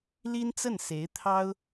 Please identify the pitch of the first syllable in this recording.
high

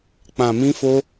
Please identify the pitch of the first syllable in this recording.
low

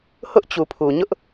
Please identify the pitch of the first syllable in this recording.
high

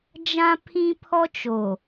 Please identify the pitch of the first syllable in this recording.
high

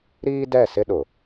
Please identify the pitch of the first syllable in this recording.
high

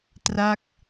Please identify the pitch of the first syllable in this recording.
falling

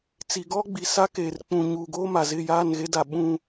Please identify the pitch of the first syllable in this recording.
low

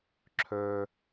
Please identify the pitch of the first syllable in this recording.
low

